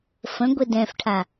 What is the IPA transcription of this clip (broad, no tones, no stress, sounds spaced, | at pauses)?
f ə̃ ɡʷ e d ɛ̃ f ʈʰ a